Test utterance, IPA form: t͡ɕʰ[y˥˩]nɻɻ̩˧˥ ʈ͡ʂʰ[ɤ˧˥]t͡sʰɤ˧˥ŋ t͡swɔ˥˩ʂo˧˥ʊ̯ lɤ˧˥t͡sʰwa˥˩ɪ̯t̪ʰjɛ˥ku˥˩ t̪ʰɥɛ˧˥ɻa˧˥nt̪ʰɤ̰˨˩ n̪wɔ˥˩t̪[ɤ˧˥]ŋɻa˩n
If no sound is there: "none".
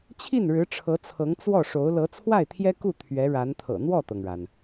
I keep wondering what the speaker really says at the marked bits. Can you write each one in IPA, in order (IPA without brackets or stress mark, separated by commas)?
i˥˩, ɤ˧˥, ɤ˩